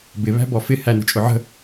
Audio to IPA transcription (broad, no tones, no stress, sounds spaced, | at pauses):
b ɪ β æ̤ b ɔ f ɪ h æ n ə̤ t͡ʃʼ ʊ ʕ ə̤